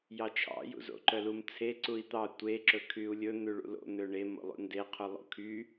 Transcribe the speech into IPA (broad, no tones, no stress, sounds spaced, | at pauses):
j ɑ t͡ʃʰ ɑ̰ j ṵ z o̰ ǃ œ l u m t͡sʰ e ǀ u i̯ t̪ ɑ tʷ e ǁ ɵ kʰ y u̯ lʲ ɵ n̪ ʉ ɭ ṵ l o̰ n̪ ø ɳ e m o̰ lˠ ṵ n d e qʰ u lˠ o̰ kʰ y